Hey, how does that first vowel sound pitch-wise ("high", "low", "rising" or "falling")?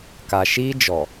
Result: low